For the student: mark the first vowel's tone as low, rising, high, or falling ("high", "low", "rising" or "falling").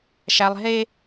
high